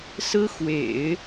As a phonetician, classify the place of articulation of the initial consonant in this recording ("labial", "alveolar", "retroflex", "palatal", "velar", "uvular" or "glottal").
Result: alveolar